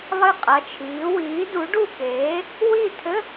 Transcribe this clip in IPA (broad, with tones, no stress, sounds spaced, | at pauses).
lˠ ɨ˥˩ qʼ ɐ˩˧˩ t͡ʃʰ iː˩˥ w iː˩˥ d u˩˥ ɖ u˥˩ k eː˩˥ | w i˥˩ tʰ ɘ˧˥˧